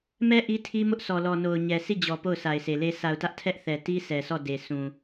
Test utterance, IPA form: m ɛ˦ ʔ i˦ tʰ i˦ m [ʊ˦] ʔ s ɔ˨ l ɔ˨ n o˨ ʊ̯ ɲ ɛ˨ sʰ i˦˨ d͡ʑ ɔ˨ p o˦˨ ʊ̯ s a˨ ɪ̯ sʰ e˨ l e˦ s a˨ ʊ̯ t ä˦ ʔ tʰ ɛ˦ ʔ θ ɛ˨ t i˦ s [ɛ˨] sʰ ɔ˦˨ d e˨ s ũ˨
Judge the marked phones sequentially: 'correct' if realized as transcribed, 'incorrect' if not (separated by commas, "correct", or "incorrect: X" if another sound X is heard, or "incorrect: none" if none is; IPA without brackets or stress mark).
correct, correct